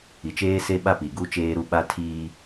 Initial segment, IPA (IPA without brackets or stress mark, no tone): i